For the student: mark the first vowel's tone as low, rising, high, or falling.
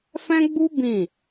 high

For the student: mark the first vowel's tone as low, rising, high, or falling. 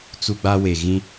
high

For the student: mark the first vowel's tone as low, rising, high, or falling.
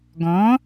rising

